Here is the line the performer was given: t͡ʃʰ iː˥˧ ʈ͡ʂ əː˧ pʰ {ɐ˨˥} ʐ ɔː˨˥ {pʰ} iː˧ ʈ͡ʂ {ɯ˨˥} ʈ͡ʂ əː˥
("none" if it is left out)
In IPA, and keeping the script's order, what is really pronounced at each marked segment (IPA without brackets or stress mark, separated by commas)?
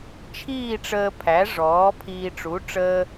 æ˨˥, pʰ, u˨˥